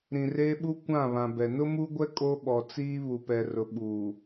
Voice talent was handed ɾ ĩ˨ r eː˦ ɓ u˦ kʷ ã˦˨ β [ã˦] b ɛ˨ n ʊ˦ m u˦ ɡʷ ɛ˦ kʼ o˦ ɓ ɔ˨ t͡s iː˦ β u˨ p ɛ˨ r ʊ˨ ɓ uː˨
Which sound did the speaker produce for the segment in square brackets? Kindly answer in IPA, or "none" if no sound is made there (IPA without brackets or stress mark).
ã˨